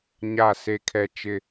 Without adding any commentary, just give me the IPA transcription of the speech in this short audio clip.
ɲ a˦˨ s e˦ kʰ ɛ˦ t͡ʃ ɪ˦

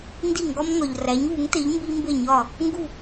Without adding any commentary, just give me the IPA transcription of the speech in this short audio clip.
n d i˥˩ ŋ ɡ ɒ˥ m ŋ ɒ˩ ʎ r æ˩˥ ɲ β u˩˥ ŋ t e˩˥ ʎ m b i˥ m b e˥˩ ɲ ɒ˥˩ | ŋ ɡ u˥˩

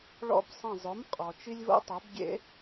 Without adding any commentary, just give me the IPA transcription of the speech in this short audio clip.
ɭ ɔ̰˧˩ b sˤ ɐ̃˧˩ zˤ ʊ˩˥ m qʼ ɔ˩ t͡ʃ i˦ lʲ v o̰˦ tˤ ɐ˩˥ b ɡʲ ḛ˨˩˦

